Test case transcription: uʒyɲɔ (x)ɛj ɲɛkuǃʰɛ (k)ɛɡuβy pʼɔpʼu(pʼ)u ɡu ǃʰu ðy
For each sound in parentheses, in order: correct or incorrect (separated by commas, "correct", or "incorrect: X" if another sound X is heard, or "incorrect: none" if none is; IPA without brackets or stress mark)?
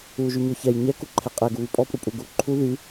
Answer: incorrect: ç, incorrect: qʼ, correct